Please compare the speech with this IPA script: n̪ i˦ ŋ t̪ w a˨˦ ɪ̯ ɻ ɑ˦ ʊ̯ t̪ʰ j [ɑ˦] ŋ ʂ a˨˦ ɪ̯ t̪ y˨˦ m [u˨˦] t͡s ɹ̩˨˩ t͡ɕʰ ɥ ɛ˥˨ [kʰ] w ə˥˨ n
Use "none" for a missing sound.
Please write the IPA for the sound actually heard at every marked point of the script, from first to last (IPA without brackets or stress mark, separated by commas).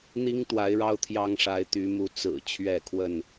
ɑ˦, u˨˦, kʰ